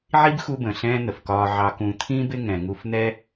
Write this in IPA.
ʕ i˦ b x u˦ b ə̃˨ ɬ ɛ̃ː˦ n̪ ə˨ f k ɒː˧ ʕ ɑ˧ k ũ˧ t̪ʰ ĩ˦ b ɪ˦ ŋ ɛ̃˨ ŋ u˧ f n̪ ɛ˦

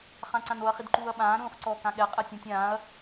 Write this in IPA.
χ ã ǀ ã n o ɐ̯ χ i d ǃ uː ɐ̯ ɓ ãː ɾ ũː χ ǀ ɔː k ã ɠ ɛ qʼ ɛ tʲ ũ tʲ ãː ɐ̯

